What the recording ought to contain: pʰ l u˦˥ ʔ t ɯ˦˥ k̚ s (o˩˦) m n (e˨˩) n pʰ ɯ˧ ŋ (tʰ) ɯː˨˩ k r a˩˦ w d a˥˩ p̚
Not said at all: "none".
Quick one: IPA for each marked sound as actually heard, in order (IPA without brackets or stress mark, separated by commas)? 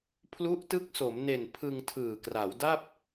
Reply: o˩˦, e˨˩, tʰ